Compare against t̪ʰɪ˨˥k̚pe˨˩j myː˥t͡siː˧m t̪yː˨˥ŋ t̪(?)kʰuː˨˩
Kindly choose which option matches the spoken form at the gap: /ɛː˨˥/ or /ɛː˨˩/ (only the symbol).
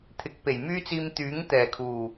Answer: ɛː˨˩